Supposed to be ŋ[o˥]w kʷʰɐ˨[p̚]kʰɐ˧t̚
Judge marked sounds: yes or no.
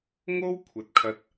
yes, no

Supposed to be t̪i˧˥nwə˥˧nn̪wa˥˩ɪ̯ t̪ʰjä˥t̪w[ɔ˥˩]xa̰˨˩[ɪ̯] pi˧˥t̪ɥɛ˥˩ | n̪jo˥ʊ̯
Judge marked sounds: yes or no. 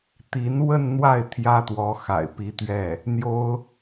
no, yes

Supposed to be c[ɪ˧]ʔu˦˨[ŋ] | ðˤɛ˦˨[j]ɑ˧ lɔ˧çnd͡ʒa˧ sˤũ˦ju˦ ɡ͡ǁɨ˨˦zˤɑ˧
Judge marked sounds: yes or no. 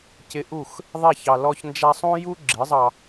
yes, no, no

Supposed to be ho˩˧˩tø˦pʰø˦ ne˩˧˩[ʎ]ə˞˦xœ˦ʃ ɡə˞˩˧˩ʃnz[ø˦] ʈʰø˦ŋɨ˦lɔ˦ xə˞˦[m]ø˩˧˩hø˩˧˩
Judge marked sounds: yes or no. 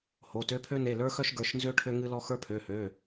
no, yes, no

